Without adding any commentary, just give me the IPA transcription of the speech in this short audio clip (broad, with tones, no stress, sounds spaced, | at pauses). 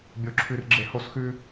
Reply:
bʲ o˧ ǁʰ ʉ˧ r ɡ͡ǁ e˧ h o˧ s x ʉ˧